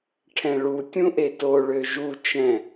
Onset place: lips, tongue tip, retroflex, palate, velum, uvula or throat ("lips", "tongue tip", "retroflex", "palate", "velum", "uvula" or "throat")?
retroflex